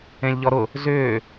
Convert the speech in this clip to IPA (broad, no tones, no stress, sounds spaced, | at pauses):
ẽ lʲ ʎ ɔ ɾ ʊ | z ʏː